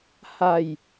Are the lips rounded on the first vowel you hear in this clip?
no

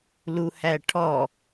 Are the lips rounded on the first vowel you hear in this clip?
yes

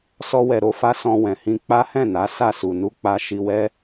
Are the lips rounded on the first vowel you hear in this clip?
yes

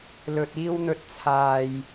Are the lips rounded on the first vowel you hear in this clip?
yes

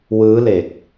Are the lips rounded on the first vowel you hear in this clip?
no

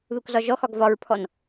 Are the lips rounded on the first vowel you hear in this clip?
yes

